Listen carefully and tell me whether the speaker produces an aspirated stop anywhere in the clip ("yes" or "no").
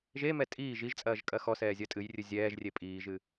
no